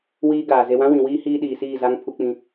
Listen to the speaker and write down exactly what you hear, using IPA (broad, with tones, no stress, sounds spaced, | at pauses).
w iː˦ ɡ aː˨ z e˨ w ã˦ w ĩ˨ w iː˦ h iː˦ ɗ iː˨ s iː˦˨ z a˦ ŋ pʰ u˦ k͡p ĩ˦